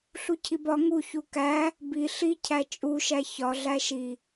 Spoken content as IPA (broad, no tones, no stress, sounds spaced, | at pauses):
ɬ u cʰ i b ɒ ŋ u ç u k æ | b i ɬ i cʰ æ t͡ʃʼ u ʃ æ ç ɒ ɮ æ ʃ i